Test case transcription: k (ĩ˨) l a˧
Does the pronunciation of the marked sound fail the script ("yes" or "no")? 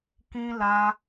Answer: yes